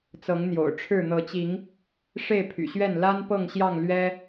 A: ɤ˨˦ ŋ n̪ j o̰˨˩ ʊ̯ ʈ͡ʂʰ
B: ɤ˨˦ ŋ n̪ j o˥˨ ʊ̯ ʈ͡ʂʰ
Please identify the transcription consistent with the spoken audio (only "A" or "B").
A